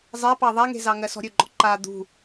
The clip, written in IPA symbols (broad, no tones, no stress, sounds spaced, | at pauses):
zˤ ɛ p ɑ ðˤ æ ŋ e̤ z ɑ ŋ ɜ s ɔ̤ ɾʲ ɵ ɡ͡ǃ ɔ ǃ a d̪ ṳ